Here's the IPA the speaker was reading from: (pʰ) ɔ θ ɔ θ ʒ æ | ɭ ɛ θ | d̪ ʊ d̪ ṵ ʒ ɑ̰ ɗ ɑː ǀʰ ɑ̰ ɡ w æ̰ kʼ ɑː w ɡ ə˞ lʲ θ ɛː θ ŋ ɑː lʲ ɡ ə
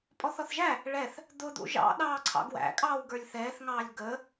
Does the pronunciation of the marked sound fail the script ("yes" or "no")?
yes